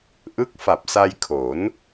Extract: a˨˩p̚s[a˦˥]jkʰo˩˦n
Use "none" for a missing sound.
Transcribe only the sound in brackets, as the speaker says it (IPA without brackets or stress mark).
a˧